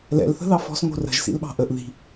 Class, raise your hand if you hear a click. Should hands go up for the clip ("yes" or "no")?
no